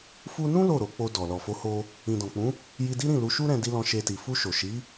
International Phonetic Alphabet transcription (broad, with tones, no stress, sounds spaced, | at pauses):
f u˧ n ũ˦ l o˦˨ ɾ o˨˦ k͡p o˧ d ɔ˨ l ɔ˨ f o˨˦ h o˧ | ĩ˨ d ɔ̃˨ k͡p ũ˨˦ | j i˧ d i˦ ɾ ĩ˦˨ l u˨˦ ʃ u˦ ɾ ɛ̃˧ d i˧ l ɔ̃˧ ʃ e˧ t i˨ f u˧ ʃ o˨ ʃ i˨˦